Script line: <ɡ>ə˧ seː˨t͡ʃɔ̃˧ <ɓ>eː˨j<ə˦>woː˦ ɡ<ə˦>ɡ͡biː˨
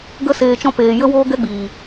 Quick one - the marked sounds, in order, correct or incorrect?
correct, incorrect, correct, incorrect

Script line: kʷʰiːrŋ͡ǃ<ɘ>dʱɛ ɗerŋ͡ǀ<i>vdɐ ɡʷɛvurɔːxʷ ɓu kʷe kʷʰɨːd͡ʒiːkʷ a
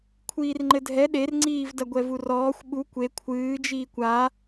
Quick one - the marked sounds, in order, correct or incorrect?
correct, incorrect

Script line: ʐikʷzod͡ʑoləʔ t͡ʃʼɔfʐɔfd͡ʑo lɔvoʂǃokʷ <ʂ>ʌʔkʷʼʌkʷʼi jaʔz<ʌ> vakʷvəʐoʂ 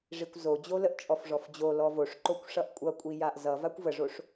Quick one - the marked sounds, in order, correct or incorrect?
correct, correct

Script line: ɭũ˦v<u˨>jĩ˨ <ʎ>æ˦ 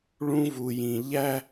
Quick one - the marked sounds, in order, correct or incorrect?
correct, correct

